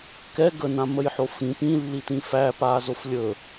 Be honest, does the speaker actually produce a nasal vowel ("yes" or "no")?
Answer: yes